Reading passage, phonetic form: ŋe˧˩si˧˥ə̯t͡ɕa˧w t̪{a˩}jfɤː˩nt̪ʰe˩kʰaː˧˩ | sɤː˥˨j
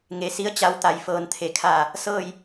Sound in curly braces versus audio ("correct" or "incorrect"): correct